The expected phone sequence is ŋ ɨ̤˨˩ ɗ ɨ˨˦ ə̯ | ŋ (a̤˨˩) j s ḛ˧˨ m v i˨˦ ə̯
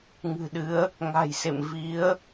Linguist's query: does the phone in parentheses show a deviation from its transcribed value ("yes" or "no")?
no